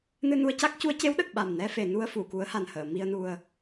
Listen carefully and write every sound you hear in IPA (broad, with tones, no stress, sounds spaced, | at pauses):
n ɨ˧ n u˧ ə̯ c a˦˥ k̚ c u˧˥ ə̯ c e˧˥ w ɗ ə˨˩ k̚ ɓ a˨˩ m n ɛ˧ f e˨˩˨ n u˧ ə̯ f u˨˩˨ k u˧˥ ə̯ h a˨˩ n h əː˨˩˨ m i˧ ə̯ n u˧ ə̯